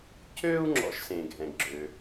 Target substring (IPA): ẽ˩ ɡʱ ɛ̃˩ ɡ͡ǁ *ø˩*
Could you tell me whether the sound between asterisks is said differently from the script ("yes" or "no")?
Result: no